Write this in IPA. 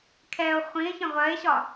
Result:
kʰɛo̯ χʷĩe̯çə̃ ʁʷɜe̯ɕɒ

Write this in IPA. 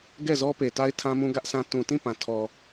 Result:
ɡɛ˦˨ zɔ˦pe˨ta˦ɪ̯ tʰã˦mũ˦ɡä˦ʔsã˦ tũ˨tĩ˦˨ pã˨tʰɔ˨

